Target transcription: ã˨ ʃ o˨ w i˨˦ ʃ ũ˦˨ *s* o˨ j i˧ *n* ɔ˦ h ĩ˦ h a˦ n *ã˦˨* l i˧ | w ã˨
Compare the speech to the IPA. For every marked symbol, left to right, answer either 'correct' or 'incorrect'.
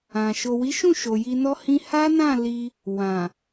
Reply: incorrect: ʃ, correct, correct

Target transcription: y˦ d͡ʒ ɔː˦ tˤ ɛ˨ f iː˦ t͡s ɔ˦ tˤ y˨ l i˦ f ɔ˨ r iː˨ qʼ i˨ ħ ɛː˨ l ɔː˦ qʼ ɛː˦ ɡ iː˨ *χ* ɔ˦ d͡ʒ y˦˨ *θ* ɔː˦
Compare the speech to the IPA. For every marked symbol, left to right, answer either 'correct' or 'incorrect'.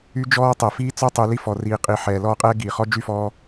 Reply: correct, incorrect: f

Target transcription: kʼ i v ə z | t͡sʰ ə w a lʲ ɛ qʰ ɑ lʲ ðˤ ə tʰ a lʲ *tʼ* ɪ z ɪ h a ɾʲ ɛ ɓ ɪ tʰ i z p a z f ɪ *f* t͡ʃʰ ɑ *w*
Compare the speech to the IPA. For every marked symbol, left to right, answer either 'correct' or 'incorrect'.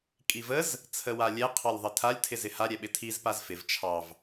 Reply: incorrect: tʰ, incorrect: v, incorrect: v

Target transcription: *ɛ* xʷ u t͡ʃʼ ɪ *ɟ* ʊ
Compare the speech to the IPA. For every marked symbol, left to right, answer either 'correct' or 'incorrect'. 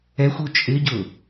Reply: correct, correct

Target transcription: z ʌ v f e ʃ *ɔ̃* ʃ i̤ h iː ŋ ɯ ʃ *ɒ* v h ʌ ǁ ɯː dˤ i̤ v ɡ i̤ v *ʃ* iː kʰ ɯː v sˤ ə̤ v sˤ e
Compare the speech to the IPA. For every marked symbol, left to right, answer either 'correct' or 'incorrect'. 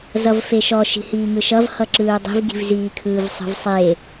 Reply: incorrect: ɔ, incorrect: ʌ, incorrect: z

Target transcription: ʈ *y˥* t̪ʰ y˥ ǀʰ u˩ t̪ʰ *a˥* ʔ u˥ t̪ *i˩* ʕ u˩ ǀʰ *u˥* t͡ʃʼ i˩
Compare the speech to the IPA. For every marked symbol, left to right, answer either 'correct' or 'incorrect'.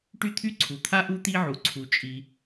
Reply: correct, correct, incorrect: i˥, incorrect: u˩

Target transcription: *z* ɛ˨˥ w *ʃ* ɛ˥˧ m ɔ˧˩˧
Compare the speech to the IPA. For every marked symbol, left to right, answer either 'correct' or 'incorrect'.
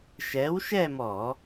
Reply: incorrect: ʃ, correct

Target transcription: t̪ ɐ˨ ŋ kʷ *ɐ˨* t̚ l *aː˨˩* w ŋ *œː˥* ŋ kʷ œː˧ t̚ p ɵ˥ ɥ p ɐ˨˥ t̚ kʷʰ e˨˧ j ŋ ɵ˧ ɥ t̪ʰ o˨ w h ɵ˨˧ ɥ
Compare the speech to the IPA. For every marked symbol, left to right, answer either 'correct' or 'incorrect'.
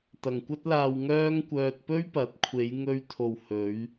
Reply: incorrect: ɐ˥, incorrect: aː˧, correct

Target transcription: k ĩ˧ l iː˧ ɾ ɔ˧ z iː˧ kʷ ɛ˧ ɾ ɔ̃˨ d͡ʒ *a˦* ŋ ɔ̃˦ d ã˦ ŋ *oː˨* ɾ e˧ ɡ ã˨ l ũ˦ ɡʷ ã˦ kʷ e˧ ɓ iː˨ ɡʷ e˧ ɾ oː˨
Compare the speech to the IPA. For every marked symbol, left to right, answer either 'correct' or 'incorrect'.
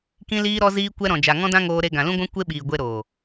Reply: incorrect: a˨, incorrect: oː˧

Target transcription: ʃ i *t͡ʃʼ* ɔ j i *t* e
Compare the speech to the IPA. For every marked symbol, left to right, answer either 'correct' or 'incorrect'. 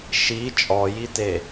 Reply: correct, correct

